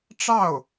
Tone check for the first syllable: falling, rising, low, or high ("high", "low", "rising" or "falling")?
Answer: falling